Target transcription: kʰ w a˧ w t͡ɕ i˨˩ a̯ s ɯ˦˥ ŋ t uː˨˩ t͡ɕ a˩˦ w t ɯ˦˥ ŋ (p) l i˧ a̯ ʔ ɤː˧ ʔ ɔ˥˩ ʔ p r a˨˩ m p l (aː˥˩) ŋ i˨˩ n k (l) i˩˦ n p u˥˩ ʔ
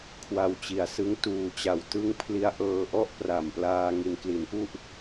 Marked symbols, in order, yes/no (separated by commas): no, no, yes